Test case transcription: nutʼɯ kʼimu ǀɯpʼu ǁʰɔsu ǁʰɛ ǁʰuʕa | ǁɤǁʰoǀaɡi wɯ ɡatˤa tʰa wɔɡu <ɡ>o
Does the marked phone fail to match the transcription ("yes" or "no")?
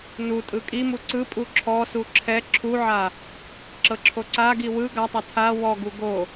no